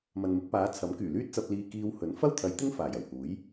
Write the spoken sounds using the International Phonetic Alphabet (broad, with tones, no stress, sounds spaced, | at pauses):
m ɐ˨ n m ɪ˧ k̚ p aː˨˧ t͡sʰ ɐ˨˥ m k yː˨˩ l yː˥ t̚ t͡s ɐ˧ p̚ l iː˧ k iː˧ w h ɵ˨˥ n f ɐ˥ w t̪ʰ ɐ˨˧ j t̪ ɪ˥ ŋ f aː˨˩ j ɐ˨˩ w h uː˨˥ j